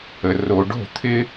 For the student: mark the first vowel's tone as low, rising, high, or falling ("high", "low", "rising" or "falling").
low